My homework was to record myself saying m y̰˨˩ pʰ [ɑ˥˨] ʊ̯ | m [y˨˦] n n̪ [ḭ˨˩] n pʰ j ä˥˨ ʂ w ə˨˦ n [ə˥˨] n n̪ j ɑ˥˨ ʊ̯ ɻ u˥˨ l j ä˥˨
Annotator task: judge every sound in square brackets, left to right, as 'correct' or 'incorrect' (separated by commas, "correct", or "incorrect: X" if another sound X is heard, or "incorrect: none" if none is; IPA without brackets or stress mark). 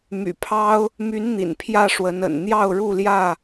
incorrect: ɑ˦, correct, correct, incorrect: ə̰˨˩